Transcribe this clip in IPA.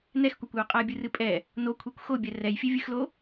n ɛ x kʷ a kʷ j o qʼ a bʲ ɨ r ɨ pʼ ɛ | n o kʷʰ e kʷ x o bʲ ɛ r ɛ j fʲ e vʲ ɨ x l o

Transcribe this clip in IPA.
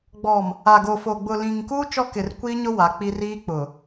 ɡ͡b ɔ˨ m | a˨ ɡ o˨ f oː˨ ɡ͡b ʊ˨ l ĩ˨ ŋ k uː˦ t͡ʃ ɔ˦ k ɪ˨ r kʷ iː˦ ɲ ʊ˦ w a˨˦ k͡p i˦ r iː˦ k͡p ʊ˨

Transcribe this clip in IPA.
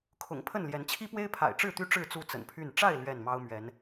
kʰ ʊ̰˨˩ ŋ pʰ ə˥˨ n l j ɛ˨˦ n t͡ɕʰ i˦ p w e˦ ɪ̯ pʰ a̰˨˩ ɪ̯ ʈ͡ʂ ɻ̩˥˨ t̪ y˦ ʈ͡ʂ ɻ̩˥˨ t͡s u˥˨ t͡s ə̰˨˩ n pʰ y˥˨ n ʈ͡ʂ a˥˨ ɪ̯ l ɥ ɛ˥˨ n m ɑ˦ ʊ̯ m ɥ ɛ˨˦ n

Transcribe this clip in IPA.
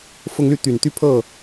f ʊ˦ ŋ l y˥˨ t̪ y˨˩ n t̪ y˥˨ pʰ ɤ˥˨

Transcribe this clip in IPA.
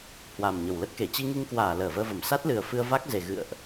h w a˨˩ m ɲ ə˨˩ w l ə˦˥ t̚ k e˧˩ t͡ɕ i˧ ŋ i˧ ŋ k w aː˧˩ l əː˧˩ v əː˧ v ə˧˩ m s a˦˥ t̚ l ɨ˨˩ ə̯ f ɨ˧ ə̯ v a˦˥ k̚ z e˨˩ ɣ ɨ̰˧˨ ə̯ ʔ

